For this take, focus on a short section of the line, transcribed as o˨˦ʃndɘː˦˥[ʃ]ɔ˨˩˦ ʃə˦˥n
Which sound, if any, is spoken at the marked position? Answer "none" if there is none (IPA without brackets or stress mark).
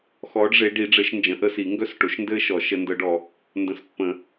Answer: ʃ